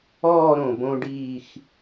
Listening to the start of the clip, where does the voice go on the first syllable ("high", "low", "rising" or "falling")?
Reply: falling